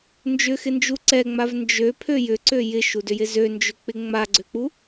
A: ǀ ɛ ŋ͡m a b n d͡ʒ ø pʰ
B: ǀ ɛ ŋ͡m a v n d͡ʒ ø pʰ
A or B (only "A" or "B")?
B